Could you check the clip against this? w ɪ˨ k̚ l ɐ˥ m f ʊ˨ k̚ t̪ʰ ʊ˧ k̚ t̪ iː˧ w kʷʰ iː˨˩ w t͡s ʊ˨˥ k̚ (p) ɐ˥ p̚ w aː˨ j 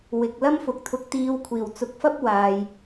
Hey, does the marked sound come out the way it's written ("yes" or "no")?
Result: no